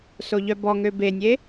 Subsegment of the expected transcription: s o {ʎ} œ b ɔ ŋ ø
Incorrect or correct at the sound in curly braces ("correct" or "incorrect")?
correct